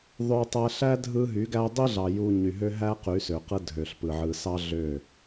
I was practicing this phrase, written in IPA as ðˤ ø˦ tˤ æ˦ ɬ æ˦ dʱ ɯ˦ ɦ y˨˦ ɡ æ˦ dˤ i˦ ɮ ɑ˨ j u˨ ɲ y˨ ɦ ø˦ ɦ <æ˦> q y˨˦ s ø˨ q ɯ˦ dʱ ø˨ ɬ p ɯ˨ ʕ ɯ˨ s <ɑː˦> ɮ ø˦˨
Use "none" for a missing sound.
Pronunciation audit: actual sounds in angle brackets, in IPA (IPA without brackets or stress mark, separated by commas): æ˦, ɑ˦